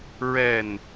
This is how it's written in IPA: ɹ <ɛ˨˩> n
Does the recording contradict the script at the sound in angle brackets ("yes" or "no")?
no